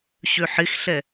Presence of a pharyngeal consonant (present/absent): present